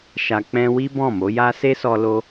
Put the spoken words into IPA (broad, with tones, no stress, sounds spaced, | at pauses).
ʃ a˨ k͡p ɛ̃˧ w i˦ b ɔ̃˦˨ m o˨˦ j a˦ s e˦ s ɔ˧ l o˧